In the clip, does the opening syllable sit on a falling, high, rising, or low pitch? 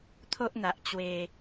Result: high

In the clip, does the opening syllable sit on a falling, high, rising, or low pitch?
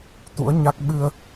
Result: rising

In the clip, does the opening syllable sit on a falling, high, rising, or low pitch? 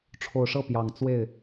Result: low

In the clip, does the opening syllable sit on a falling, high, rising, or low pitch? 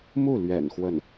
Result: falling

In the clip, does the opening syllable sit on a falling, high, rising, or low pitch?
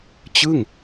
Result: falling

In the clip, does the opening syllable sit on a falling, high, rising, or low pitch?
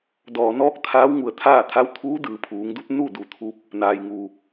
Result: low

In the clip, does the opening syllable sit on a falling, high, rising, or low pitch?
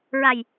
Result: low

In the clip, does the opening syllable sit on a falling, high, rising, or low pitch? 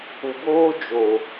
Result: low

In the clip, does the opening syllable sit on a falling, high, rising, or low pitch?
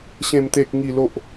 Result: low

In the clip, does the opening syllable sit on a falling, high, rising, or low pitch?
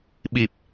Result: low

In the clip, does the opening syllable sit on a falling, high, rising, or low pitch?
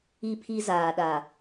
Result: high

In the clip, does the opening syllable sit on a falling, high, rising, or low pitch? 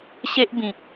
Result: high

